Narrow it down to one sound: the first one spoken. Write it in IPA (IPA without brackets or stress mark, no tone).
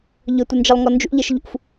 ʎ